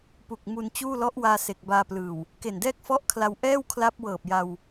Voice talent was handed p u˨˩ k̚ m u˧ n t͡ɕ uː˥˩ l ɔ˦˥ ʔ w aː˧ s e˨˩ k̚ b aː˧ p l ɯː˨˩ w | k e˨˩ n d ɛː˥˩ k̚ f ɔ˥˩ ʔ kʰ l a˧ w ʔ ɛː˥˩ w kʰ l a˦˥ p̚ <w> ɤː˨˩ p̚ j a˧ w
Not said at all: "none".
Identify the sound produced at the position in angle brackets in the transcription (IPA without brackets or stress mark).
w